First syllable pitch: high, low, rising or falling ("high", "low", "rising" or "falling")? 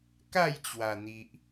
falling